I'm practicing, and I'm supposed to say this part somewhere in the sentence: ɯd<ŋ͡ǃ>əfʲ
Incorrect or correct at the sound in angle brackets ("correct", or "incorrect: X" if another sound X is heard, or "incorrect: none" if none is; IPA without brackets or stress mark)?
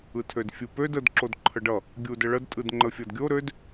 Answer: correct